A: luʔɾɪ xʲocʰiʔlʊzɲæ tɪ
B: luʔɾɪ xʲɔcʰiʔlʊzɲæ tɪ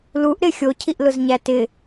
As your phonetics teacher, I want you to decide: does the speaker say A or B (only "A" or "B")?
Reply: A